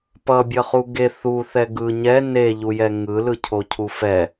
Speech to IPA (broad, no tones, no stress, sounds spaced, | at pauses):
p ʌ bʲ ʌ χ u ɡ e θ u θ ɛ ɡ ɯ ɲ ɛ n e ʎ u j ɛ ŋ ɯ l ɯ cʰ o cʰ u f ɛ